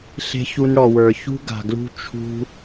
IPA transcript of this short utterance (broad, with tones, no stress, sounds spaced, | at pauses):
ɬ e̤˦ ç u˧ n ɽ ɔ˨ w ə˞˨ ç ṳ˦ ɡ a̤˨ ɡ l ṳ˧ t͡ʃʰ ṳ˧